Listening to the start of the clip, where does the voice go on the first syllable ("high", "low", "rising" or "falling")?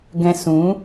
high